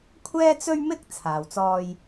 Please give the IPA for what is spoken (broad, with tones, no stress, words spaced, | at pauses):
kʷʰɛː˥t͡sɵ˥ɥmɪ˥k̚ t͡sʰaː˨wt͡sɔː˧j